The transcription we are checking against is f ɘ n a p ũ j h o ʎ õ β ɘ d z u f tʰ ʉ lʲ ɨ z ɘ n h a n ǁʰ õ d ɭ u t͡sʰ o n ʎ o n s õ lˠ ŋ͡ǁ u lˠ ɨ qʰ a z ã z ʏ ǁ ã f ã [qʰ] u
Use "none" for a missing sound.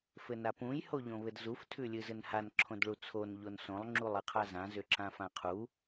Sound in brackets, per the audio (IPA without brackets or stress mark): qʰ